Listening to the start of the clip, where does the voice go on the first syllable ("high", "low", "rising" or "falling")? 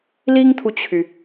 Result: high